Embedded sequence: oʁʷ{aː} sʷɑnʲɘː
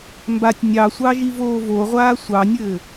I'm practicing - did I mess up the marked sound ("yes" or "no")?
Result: no